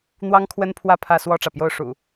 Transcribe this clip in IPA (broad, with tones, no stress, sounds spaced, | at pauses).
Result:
n̪ w ɑ˦ ŋ kʰ w ə˦ n pʰ w ä˥˨ pʰ ä˥˨ s w ɔ˥˨ ʈ͡ʂ ä˩ p j o˥˨ ʊ̯ ʂ ṵ˨˩